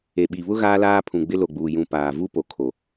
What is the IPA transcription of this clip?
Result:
e˨ɓi˨βʊ˦ ɣaː˦laː˦pʰũ˨ ɡ͡bɪ˦lo˨ɡ͡buː˨ jũ˨ paː˨vu˦ po˨kʰo˨

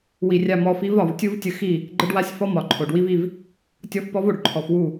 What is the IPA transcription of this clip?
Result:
wi˨rʲa˧ mɔ˧fi˦v ɒ˨vtʲu˦vtʲə˧xi˦˨ | ɡ͡ǃə˦ɖwa˦sʲfɔ˦ mɒ˨ǃʰo˨ɖ wi˦vi˦˨v | tʲɔ˦f pɔ˦vo˨ɖ ǃʰɔ˨fwu˦˨

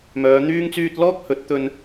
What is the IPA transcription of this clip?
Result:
mœː˨˧n̪yː˥ŋt͡syː˥t̚ lɔː˥k̚hɵ˨˥t̚ t̪ɵ˧n

